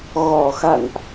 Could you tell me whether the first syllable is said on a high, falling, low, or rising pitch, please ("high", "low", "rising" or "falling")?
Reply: low